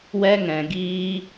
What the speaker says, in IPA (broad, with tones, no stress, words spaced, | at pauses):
wɛ˦ŋɛ̃˧ɡiː˦